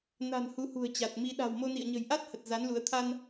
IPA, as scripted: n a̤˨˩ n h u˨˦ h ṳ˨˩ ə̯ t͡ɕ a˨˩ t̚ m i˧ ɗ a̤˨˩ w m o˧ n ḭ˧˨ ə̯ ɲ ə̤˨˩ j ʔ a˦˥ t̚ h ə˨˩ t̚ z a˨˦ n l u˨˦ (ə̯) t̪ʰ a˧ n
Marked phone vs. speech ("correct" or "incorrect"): correct